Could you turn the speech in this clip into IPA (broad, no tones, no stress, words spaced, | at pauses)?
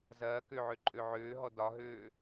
zɐː køʕø ǃʼøʕøːɦɔ dɒɦøː